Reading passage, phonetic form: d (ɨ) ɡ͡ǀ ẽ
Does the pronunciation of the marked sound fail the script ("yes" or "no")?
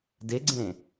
yes